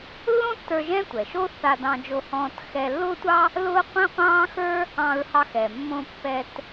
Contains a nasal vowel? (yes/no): yes